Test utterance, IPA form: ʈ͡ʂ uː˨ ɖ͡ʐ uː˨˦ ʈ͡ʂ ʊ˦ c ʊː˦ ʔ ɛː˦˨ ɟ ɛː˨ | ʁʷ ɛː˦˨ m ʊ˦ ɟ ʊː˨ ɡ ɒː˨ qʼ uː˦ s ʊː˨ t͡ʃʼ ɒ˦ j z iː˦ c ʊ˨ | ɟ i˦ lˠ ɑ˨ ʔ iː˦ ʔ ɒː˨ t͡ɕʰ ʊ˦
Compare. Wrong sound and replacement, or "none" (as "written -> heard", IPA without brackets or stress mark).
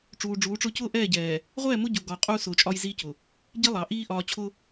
none